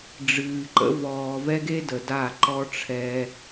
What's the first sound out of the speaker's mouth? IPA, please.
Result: ɖ͡ʐ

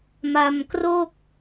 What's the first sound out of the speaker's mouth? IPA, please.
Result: m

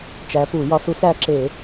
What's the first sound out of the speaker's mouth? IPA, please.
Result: t͡ʃ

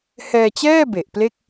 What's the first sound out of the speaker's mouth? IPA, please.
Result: h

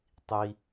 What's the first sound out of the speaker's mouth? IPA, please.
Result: tˤ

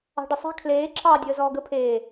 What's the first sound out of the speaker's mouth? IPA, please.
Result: ɑ̤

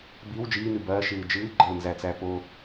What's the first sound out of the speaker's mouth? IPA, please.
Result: b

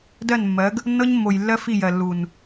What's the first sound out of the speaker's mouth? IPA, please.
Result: d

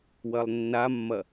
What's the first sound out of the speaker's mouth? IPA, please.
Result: w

